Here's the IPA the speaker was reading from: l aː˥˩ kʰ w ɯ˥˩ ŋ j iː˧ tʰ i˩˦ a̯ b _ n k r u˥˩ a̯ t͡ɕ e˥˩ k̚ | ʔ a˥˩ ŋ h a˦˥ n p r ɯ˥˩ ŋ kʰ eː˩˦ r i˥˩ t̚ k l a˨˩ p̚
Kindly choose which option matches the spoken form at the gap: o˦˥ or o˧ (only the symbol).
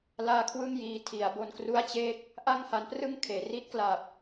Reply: o˧